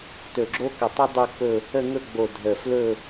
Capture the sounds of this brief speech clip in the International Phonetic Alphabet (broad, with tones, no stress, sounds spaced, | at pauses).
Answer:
t ɵ˧˩ ɡ͡ǁ o˦˥ k ə˧˩ tˤ ə˦˥ dˤ u˥˧ k͡p ɵ˥˧ | ə˥˧ ŋ ɵ˥˧ ɡ͡b o˧˩ dʱ ə˧˩ f l ɵ˥˧